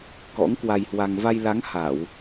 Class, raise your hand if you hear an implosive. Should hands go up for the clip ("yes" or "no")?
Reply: no